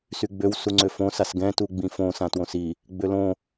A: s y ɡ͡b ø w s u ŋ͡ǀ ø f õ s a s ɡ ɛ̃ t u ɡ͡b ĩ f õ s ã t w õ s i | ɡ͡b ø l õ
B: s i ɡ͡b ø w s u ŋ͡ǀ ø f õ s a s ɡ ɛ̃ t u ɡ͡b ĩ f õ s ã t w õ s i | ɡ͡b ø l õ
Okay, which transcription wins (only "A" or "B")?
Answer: A